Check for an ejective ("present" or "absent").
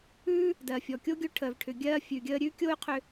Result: absent